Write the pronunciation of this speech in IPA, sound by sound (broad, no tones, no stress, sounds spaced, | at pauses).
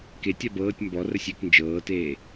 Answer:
k e tʲ a b ɤː tʲ m b ɔ r ə sʲ e k n d͡ʒ ɤː t eː